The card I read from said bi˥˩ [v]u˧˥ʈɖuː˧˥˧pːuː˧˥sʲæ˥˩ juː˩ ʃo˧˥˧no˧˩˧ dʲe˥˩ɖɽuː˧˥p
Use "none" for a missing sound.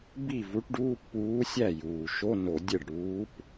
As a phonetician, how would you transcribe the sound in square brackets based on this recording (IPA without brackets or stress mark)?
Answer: v